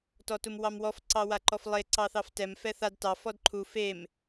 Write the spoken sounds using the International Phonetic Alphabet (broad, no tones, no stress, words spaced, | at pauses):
tɔtumwɑmwɔf ǀɑwaǃɔflˠe ǀɑθɑftɛm fɛθad tɑ fɔdǃʰu fem